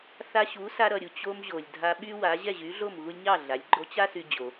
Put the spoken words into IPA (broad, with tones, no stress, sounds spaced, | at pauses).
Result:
θ a˧ ɕ u˩˥ s a˧ ɾ ʌ˩ ɾʲ u˩ t͡ɕ o˧ m ʑ o˩ lʲ dʱ a˧ ɓ y˥ w a˩˥ ʑ ɛ˥˩ ʑ y˩˥ ɮ o˥˩ m ɣ u˧ lʲ ɲ ɑ˥˩ ɮ a˩˥ lʲ ɡ͡ǃ o˧ t͡ɕ a˥ s y˧ d͡ʑ o˩